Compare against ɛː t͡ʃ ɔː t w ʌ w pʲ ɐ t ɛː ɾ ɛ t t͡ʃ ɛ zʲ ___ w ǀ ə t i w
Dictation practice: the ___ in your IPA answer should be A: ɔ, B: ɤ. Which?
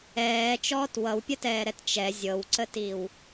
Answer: B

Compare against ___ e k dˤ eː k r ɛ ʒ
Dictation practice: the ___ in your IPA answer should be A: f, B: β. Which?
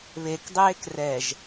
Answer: B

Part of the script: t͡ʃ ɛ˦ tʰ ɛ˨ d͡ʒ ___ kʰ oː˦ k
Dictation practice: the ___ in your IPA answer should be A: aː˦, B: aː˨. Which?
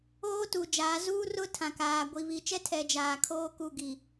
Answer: B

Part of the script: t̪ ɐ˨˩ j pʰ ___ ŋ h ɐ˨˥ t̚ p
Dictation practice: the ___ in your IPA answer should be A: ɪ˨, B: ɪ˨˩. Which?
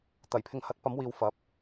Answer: A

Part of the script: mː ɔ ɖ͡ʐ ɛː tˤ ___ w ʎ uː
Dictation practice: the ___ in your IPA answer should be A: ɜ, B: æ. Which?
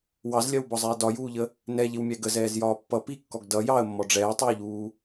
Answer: A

